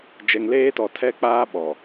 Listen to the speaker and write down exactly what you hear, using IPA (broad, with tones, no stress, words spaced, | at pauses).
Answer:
d͡ʒɛ˨ŋleː˦tɔ˨tʰɛ˦ k͡paː˦ɓɔ˨